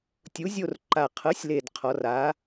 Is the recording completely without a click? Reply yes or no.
no